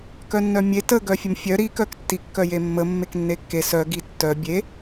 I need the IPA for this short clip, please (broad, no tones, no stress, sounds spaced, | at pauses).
k œ nː œ mʲ e t ə ɡ œ fʲ ə m fʲ œ ɾ i k œ k tː i kː œ j e mː ə mː e k nː e kː e s œ ɡ i tː œ bʲ e